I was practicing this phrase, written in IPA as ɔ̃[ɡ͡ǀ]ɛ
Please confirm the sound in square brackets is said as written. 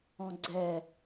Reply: yes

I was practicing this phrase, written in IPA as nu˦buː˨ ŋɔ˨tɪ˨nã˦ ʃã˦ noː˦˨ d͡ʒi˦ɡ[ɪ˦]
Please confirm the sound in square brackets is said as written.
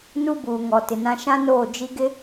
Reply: yes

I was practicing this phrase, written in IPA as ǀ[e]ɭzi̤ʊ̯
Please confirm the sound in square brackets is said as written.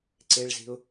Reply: yes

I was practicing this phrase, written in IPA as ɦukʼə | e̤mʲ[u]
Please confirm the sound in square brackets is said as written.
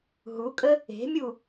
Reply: yes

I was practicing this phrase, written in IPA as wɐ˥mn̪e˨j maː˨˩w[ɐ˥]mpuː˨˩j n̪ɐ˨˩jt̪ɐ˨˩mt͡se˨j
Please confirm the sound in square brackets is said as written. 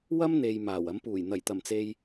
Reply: no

